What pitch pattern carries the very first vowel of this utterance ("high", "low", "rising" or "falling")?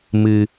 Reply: low